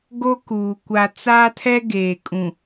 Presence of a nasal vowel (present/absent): present